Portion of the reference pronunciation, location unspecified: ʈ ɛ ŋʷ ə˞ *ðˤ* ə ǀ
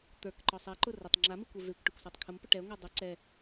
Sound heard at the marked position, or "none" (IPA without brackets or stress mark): dˤ